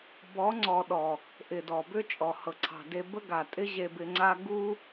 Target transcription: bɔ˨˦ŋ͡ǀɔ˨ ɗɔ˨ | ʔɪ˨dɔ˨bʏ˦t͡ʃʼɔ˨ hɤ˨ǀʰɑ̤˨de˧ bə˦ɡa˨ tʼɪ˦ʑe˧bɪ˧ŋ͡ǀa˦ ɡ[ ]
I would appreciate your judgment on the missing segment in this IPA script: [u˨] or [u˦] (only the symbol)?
u˦